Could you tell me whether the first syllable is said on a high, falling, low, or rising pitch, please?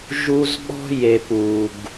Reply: high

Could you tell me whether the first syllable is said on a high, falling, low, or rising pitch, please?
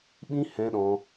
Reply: high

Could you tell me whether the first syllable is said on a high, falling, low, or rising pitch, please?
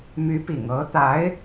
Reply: rising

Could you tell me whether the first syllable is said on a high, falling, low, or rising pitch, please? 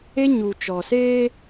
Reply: high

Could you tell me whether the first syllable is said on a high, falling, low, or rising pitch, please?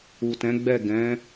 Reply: low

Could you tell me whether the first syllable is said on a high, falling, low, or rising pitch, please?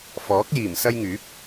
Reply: rising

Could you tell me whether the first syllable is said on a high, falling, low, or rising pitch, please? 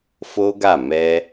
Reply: high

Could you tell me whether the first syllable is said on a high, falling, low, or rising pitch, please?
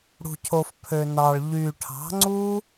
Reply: low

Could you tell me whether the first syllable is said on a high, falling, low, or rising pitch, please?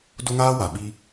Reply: high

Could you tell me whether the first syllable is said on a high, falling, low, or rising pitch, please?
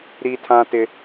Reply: high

